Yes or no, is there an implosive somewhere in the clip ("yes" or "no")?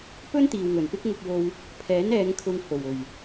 no